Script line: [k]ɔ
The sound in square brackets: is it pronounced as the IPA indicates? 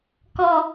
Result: yes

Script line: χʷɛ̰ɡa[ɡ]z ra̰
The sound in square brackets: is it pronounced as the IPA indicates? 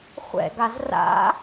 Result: no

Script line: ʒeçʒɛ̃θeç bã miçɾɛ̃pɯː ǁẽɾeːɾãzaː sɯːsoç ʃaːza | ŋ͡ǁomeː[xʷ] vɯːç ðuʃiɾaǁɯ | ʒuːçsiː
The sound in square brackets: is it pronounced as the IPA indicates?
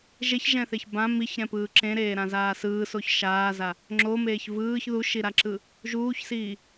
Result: no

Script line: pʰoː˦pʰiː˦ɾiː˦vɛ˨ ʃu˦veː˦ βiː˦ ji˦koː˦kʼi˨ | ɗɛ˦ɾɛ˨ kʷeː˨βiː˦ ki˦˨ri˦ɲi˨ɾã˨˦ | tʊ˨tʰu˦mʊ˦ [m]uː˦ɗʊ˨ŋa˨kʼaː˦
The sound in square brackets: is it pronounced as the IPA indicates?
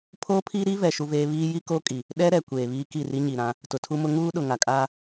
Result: no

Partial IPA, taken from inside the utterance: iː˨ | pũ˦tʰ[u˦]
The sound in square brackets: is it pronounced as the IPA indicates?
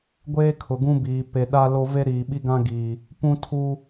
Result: yes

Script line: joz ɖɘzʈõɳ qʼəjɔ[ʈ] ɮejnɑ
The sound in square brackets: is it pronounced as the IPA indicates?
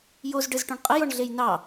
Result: no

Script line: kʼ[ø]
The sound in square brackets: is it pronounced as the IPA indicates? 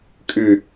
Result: no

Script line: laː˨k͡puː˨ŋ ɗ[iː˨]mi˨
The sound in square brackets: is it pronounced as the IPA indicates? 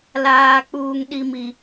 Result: no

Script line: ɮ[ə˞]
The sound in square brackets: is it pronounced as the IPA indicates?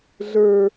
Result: yes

